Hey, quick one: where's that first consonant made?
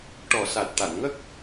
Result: retroflex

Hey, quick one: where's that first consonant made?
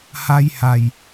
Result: throat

